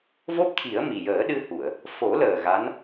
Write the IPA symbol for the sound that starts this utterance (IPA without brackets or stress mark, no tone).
v